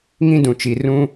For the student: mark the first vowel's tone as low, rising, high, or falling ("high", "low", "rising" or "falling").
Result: high